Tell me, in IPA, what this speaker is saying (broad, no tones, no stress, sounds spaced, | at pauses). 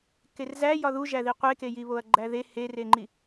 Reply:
k e r z æ j ɒ ð u ʒ æ ð i qʷ e k e j i β o ɐ̯ ɡ͡ǃ æ ð e h e r e ŋ͡ǃ i